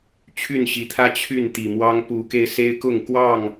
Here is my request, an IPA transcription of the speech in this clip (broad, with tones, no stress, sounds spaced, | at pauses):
t͡ɕʰ y˥˨ n ɕ i˨˦ t̪ʰ ä˦ t͡ɕʰ y˥˨ n t̪ i˨˩ m w ɑ˦ ŋ p u˨˦ k e˧ ɪ̯ s e˦ ɪ̯ k ʊ˥˨ ŋ k w ɑ˥˨ ŋ